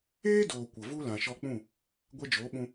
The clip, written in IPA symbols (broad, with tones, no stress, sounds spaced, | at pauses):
eː˦ d oː˨ kʷ ə˨ v u˦ l ã˨ ʃ ɔ˧ k͡p ũ˦˨ | ɡʷ ɛ˧ d͡ʒ oː˨˦ ɓ ũ˧